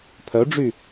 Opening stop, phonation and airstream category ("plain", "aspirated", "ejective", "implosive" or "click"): aspirated